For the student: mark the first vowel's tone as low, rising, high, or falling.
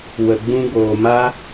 low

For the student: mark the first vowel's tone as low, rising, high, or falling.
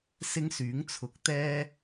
high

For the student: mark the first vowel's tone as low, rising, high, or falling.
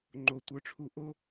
low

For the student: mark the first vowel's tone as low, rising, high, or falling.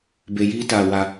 low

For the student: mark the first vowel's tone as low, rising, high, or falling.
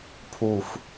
falling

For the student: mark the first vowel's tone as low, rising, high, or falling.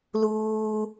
high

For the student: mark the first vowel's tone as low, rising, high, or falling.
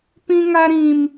high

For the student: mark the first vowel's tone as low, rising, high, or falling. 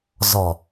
low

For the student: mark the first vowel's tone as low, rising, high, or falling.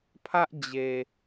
high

